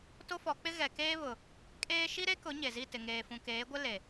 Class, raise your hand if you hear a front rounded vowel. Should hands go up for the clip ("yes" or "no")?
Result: no